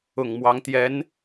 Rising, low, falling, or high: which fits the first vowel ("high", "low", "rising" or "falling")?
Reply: low